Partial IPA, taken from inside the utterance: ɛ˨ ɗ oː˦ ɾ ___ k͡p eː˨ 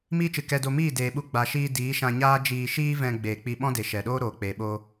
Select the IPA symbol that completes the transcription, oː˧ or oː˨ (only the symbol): oː˨